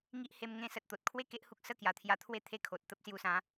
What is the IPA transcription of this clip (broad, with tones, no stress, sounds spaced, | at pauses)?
ŋ i˦ ʔ h e˧ m ŋ ẽ˥˧ s ə˨ t̚ t̪ o˨ t̚ kʰ w e˥˧ k e˦ ʔ h u˦ k̚ s ə˥˧ k j a˨˩ t̪ʰ j a˧ t̪ʰ w e˦ t̪ʰ e˥˧ kʰ o˨ t̚ t̪ ə˦ p̚ s j u˧ s ã˨˦